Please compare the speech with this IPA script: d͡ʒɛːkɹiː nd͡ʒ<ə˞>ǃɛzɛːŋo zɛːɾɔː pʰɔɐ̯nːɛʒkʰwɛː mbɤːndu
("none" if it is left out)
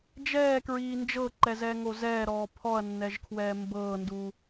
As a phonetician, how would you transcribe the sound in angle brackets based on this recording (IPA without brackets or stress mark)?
ɤ